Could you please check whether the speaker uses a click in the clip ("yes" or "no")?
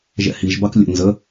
no